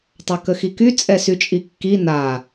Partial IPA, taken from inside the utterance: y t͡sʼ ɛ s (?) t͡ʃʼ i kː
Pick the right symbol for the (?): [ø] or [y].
y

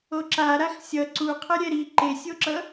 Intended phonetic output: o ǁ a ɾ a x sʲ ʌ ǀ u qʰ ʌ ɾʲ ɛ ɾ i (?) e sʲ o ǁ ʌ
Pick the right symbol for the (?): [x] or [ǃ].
ǃ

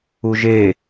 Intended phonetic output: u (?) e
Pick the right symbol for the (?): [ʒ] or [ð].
ʒ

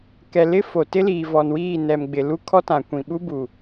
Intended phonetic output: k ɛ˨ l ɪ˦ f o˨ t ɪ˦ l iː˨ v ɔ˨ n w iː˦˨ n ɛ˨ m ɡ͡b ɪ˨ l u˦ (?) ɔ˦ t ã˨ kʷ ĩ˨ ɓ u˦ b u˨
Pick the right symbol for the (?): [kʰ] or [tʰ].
kʰ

